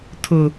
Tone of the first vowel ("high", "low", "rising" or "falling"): low